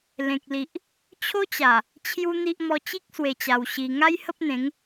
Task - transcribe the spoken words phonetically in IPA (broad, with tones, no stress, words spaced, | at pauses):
lẽ˨k̚li˨ʔ | t͡ɕʰo˦t͡ɕa˨˩ | t͡ɕʰju˦n̪i˦ʔ mɔ˧t͡ɕi˦k̚swe˨˩t͡ɕa˨˩w ɕi˧ ŋa˦jhə˦p̚n̪ẽ˨˦ŋ